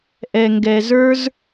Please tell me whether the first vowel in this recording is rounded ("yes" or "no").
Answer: no